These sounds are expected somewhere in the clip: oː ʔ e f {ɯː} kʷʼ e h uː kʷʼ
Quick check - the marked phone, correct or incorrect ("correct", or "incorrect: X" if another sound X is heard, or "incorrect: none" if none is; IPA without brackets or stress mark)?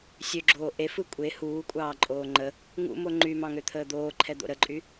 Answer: incorrect: ɯ